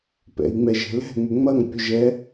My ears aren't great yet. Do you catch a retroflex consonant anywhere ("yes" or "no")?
no